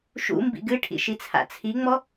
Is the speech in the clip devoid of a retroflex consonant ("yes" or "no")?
no